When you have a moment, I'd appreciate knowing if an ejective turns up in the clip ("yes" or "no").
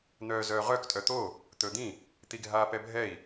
yes